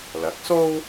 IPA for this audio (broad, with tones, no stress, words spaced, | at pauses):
lɐ˨˥k̚ so˥w